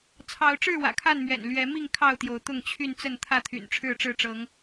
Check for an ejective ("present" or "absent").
absent